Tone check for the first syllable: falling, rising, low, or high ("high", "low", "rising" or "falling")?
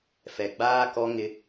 low